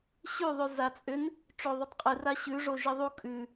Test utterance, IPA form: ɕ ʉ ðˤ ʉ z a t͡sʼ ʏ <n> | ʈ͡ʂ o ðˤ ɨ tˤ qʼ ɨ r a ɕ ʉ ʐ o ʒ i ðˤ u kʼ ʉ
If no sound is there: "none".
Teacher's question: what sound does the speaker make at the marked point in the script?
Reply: n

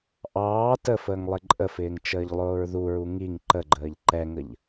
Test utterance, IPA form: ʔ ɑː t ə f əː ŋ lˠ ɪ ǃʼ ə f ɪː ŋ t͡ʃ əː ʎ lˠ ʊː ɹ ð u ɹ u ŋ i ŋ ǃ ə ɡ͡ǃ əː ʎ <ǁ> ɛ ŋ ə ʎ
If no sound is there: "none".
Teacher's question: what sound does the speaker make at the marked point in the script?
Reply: ǃ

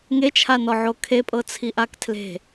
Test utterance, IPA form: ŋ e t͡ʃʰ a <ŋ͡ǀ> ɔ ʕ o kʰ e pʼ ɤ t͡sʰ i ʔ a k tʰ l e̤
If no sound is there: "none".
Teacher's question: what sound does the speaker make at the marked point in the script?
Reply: n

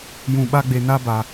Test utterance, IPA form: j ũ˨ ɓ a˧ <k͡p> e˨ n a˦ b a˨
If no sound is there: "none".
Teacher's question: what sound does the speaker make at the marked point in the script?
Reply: ɡ͡b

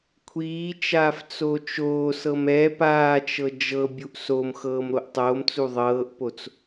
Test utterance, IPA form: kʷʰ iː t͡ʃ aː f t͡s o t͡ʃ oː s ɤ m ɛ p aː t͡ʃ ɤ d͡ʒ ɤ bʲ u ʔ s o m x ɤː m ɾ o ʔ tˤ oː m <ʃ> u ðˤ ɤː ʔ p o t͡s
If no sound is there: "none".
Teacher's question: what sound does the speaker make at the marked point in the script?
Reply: t͡s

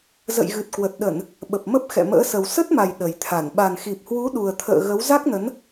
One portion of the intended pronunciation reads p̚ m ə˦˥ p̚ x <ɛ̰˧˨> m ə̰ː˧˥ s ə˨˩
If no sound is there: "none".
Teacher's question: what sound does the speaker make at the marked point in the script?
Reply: ɛ̰˧˨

